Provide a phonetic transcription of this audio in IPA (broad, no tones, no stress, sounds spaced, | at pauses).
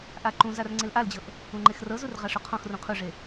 ʔ a ǃ ũ z a r ŋ͡ǀ e l ʔ a l d͡ʑ ɤ ʔ | ũ ŋ͡ǃ e x r ɤ z u r ʁ a ʂ o qʰ ɔ̃ x r ũ qʰ u ʐ e